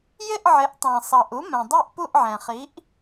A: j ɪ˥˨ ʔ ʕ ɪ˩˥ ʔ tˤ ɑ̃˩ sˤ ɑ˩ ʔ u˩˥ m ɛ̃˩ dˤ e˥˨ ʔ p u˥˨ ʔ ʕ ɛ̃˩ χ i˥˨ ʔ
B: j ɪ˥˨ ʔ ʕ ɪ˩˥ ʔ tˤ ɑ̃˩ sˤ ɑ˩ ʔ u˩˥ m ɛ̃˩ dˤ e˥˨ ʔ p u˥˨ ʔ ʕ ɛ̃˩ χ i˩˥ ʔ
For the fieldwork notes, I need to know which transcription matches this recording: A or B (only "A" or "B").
B